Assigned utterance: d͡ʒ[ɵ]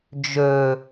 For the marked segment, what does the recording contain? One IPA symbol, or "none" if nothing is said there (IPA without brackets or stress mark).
ɵ